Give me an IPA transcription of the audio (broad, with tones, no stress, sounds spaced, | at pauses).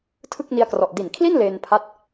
tʰ ɯ˥˩ k̚ n i˧ a̯ k r ɔ˨˩ ʔ d i˨˩ n kʰ l i˥˩ n l eː˧ n pʰ a˦˥ t̚